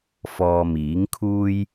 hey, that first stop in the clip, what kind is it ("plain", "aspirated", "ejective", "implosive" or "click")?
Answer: aspirated